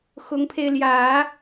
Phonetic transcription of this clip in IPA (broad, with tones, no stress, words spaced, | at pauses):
xʊ˧˥ŋpʰe˧ɪ̯ ljä˨˩˦